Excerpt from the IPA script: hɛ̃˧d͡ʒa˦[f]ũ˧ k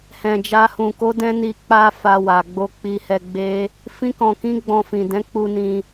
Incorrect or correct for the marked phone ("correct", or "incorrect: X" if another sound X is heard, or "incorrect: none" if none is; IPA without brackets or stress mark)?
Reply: incorrect: h